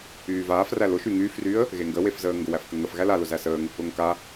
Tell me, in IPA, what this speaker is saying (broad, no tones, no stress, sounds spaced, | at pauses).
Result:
yː v aː f r æ l ʊ ʃ y ŋ yː f r yː ə̯ | ɣ e ŋ ɡ ə w e f z əː ŋ ɡ ʊ w æ f k ə ŋ ə f ɣ æ l a l ʊ z æ s əː ŋ | ʊ ŋ k a